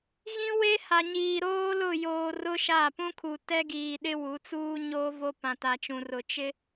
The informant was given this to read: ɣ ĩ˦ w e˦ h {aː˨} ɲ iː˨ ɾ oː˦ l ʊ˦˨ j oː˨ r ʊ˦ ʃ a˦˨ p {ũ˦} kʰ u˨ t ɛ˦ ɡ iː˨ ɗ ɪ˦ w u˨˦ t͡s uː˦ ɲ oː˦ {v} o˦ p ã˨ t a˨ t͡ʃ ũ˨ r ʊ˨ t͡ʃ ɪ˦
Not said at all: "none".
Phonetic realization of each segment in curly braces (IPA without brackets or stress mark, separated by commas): a˨, ũ˦, v